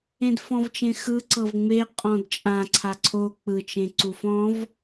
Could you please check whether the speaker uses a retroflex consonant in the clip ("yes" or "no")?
no